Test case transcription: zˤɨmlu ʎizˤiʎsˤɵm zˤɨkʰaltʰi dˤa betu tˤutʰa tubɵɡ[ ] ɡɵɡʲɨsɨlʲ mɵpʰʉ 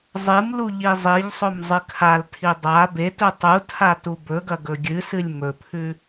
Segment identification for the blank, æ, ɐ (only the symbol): ɐ